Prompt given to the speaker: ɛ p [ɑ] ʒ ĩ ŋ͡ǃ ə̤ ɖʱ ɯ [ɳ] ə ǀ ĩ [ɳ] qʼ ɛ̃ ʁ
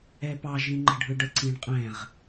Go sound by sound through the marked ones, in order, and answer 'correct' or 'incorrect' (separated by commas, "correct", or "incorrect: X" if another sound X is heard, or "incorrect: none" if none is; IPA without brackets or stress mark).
correct, incorrect: ɖ, correct